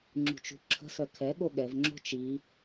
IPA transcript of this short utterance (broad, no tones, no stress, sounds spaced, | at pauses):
ŋ͡ǁ ṳ t͡ʃ ṳ ǁʰ ə̤ s œ kʰ ɛ ɠ o ɠ ɛ v ŋ͡ǁ o̤ t͡ʃ i